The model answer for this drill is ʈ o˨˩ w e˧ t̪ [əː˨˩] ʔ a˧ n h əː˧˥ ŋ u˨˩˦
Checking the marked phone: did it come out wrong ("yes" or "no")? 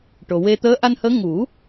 yes